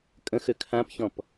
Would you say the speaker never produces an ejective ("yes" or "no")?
no